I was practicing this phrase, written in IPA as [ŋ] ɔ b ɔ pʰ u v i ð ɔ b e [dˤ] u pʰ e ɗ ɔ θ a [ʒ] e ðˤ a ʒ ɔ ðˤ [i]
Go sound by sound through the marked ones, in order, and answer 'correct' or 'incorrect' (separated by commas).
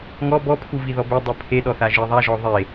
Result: correct, correct, correct, incorrect